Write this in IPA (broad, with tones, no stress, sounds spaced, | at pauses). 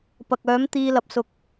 p ɐ˨ k̚ œː˨˥ m t̪ iː˧ l ɐ˨˥ p̚ s ʊ˨ k̚